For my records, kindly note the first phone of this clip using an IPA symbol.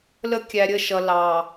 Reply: l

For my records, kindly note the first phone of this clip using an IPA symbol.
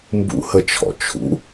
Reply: m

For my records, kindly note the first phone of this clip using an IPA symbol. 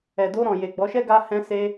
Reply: ɛ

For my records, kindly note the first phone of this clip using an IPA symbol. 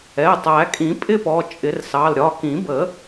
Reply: ɛ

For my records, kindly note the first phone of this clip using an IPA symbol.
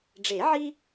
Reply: ɖ͡ʐ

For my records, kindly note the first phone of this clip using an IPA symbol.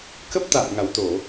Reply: k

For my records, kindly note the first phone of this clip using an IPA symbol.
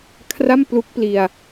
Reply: kʰ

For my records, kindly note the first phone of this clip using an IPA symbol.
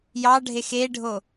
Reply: j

